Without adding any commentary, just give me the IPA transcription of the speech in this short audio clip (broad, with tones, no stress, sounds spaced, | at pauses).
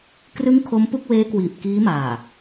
k r ɯ˦˥ ŋ kʰ o˦˥ m p u˥˩ k̚ w eː˦˥ k w iː˨˩ p̚ k iː˦˥ m aː˨˩